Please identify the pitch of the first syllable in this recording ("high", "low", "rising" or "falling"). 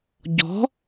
rising